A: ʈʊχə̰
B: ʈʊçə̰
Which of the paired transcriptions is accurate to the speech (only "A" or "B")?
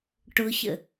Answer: B